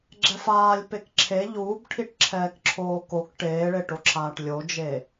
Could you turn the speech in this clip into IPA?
ɡ͡ǁ ɛ f aː lʲ p e k ǁʰ e ʎ uː b ʈʰ i ʈ ǁʰ ɛː k ǁʰ oː k o k ʈ eː ɭ e ʈ o ǁʰ aː ʈ lʲ o d͡ʒ e

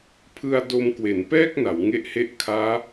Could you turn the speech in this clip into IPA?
pʰ ɯ˧ a̯ d o˧ m k w e˩˦ n p ɛː˥˩ k̚ n a˩˦ w ŋ e˦˥ ʔ h e˦˥ ʔ kʰ aː˦˥

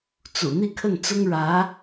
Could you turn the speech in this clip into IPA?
t͡s ṵ˨˩ n̪ i˥˧ kʰ ə˥˩ n t͡s ʊ˥ ŋ ɻ ä˧˥

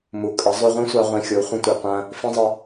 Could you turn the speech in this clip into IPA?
m u˨ kʼ ə˨˦ zˤ ʉ˧ ʁʷ ĩ˦ sʷ ɑ˧ ʁʷ ĩ˧ xʲ o˨˦ χʷ ə̃˧ tʷ i˨ qʷ ɐ̃˦ | f ĩ˦ zˤ ə˦

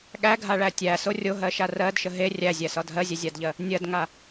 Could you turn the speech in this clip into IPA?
ɠ æ ɡʱ a ɭ æ tʲ æ s o rʲ o ɦ ɜ ʃ a r ɜ d ʃ ə ɦ e rʲ æ zʲ æ s ɒ dʱ ɜ zʲ e zʲ a d ʎ ɜ | nʲ ɜ d ŋ a

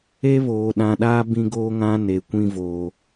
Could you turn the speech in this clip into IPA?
e˦ β oː˨ ɗ ã˨ ɗ aː˦ b ĩ˦ ɡ oː˦ ŋ ã˦ n e˨ kʷ ĩ˦ v oː˨

